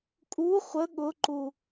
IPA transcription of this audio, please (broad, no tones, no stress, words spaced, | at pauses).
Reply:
kʼu χʷə ɠʊǃu